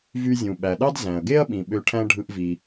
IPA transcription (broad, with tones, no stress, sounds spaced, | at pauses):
v y˧ zʲ ũ˩ ɓ æ˩ ɗ ɑ˥ d z æ̃˩ ɐ̯ ɡ e˥ ɐ̯ ɓ ĩ˩ ɓ ø˧ ʈʰ æ̃˥ ɖʱ ɯ˧ ʔ v i˩